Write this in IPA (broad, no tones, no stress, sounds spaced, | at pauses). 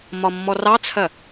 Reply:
m ɒ mː ɔ r ɑ t͡sʰ ɜ